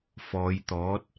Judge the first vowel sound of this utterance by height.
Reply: mid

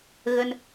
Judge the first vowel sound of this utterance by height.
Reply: mid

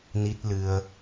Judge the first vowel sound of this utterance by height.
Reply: high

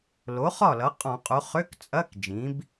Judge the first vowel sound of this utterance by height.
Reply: mid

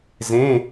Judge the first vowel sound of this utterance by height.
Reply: mid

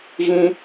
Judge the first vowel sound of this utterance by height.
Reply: high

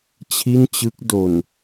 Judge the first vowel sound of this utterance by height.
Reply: high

